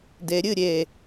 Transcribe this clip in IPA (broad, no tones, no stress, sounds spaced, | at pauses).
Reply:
d e ɾʲ ɨ ɾʲ e